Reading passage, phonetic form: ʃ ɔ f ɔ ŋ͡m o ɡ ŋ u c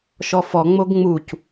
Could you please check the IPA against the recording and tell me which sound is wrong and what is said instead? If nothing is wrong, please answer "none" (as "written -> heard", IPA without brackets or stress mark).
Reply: ŋ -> ŋ͡m